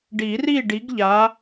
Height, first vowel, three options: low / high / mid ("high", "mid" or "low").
high